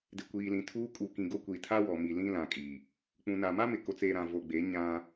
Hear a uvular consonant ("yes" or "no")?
no